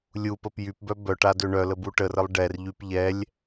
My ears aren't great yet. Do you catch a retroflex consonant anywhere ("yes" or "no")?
yes